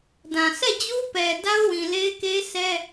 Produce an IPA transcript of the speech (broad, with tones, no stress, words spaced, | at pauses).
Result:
dã˨ sɛ˦˨d͡ʑu˦pɛ˨ da˦ʊ̯wĩ˨le˦ɪ̯ke˦ sɛ˦